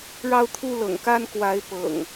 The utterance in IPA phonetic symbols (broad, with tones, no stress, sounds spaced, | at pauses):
ɻ ɑ˦ ʊ̯ t̪ʰ u˦ l ɤ̰˨˩ ŋ k a˦ n k w a˨˦ ɪ̯ p ɤ̰˨˩ ŋ